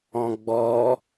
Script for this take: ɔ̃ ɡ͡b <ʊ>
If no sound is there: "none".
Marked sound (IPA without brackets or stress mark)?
ɔ